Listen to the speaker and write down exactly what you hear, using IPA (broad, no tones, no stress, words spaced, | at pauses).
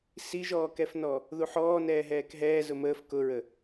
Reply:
siʒɔːkɛfnɔ | ðuħɔː nɛːɦɛːkɦɛː zʊməːf kʊɹə